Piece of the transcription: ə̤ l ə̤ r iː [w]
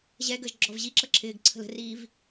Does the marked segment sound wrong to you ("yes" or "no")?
yes